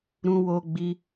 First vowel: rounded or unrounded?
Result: rounded